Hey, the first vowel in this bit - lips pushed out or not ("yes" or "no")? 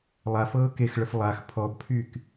no